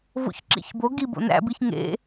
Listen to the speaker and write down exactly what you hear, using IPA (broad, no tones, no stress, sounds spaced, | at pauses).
v o̰ ç ǁ ḭ ç b o ɡ i b o̰ n æ̰ b i ç ŋ ḛ